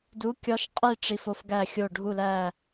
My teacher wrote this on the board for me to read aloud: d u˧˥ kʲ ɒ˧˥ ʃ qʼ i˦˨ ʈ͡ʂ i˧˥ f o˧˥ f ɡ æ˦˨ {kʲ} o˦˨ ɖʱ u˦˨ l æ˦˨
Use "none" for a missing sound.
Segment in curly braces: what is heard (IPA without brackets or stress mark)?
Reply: xʲ